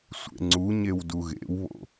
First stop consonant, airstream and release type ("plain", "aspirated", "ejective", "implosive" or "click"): click